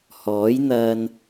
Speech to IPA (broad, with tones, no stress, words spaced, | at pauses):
hɔː˨˥jn̪ɐ˧n